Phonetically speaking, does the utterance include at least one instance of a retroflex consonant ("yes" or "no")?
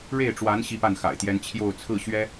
yes